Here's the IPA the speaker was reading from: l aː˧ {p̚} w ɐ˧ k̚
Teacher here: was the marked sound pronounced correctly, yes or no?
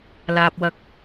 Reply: yes